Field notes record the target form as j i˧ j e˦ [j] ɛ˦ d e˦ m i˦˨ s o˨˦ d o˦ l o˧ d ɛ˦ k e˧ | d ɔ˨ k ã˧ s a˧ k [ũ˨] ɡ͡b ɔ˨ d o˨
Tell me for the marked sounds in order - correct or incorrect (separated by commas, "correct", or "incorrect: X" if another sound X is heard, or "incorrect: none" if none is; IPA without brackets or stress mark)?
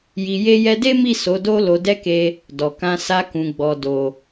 correct, correct